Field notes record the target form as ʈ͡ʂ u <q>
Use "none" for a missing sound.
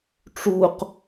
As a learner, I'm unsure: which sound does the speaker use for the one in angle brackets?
q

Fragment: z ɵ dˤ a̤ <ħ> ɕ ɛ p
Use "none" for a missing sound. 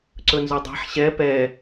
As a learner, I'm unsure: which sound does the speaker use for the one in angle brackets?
ħ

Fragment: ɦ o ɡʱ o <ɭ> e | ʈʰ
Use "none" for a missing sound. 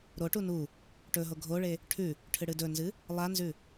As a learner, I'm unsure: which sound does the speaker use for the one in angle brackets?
ɭ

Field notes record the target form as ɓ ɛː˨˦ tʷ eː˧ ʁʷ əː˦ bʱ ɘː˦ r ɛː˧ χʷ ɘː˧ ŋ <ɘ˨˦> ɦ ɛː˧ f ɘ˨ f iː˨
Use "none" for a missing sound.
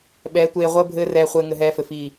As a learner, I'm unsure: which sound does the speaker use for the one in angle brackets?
ɘ˧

